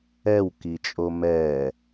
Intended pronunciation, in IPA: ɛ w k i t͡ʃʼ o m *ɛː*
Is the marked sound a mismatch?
no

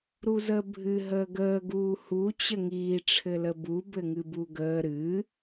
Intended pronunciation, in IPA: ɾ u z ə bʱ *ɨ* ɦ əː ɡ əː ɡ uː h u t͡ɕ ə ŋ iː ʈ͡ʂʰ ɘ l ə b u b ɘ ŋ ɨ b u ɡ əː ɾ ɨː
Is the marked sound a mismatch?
no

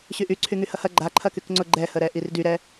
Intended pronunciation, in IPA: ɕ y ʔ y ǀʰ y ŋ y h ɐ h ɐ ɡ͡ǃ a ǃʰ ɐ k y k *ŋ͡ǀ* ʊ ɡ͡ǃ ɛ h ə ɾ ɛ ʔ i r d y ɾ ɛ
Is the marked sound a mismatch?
no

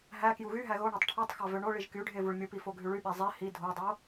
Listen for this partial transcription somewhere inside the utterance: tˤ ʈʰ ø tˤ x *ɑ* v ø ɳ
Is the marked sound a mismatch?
no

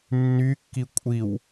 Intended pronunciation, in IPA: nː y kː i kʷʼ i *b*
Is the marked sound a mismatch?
yes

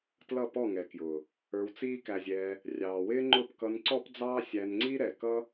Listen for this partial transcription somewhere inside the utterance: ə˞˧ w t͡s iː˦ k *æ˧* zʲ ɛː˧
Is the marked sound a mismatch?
no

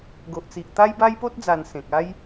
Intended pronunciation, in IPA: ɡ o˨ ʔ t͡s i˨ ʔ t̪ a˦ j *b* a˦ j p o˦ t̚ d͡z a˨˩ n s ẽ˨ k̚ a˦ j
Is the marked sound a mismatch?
no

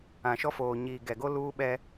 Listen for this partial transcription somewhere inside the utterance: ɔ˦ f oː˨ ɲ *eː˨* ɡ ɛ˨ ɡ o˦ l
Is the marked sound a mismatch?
yes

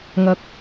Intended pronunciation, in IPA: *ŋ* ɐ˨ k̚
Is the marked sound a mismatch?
no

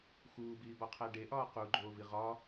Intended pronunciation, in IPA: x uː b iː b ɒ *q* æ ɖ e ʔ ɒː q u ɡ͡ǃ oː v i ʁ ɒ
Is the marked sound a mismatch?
yes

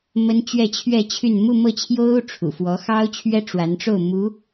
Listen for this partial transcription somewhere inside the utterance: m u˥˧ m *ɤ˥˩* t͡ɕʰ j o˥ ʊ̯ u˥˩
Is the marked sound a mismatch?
no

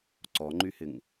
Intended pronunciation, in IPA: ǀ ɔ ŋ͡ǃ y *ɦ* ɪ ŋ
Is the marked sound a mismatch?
yes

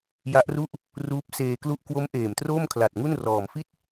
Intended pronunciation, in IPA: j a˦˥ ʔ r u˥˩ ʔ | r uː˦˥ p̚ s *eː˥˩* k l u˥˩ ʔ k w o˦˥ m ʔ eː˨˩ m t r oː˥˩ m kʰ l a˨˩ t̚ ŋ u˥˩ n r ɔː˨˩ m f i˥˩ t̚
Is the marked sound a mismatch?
yes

